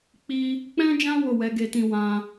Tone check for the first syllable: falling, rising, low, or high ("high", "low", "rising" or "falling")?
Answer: high